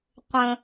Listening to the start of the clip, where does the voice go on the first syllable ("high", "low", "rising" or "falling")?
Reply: low